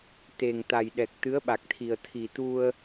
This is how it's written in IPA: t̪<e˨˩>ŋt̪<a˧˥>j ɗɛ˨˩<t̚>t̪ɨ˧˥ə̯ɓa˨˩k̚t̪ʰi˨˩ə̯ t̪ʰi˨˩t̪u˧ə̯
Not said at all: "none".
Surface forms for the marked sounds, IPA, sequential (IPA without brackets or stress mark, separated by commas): e˨˩, a˨˩, k̚